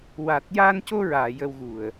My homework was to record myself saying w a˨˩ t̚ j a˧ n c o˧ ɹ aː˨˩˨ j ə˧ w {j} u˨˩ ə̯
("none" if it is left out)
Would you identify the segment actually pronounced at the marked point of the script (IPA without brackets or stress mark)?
ɣ